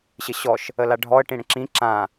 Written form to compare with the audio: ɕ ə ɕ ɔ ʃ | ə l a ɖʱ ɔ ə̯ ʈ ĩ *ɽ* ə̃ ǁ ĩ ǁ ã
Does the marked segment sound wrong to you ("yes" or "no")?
no